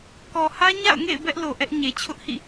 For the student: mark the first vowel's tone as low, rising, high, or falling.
low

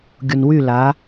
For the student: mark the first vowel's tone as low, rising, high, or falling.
low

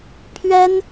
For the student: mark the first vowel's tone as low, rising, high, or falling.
high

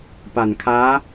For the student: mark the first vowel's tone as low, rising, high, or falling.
low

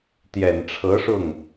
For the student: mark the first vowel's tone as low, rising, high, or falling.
low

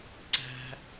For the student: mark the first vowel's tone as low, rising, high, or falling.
high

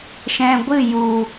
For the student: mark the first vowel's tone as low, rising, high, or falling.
low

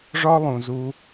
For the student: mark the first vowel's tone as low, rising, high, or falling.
high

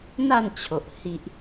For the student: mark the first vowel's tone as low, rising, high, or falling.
falling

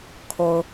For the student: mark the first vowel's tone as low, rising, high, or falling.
low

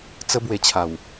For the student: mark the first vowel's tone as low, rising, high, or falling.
high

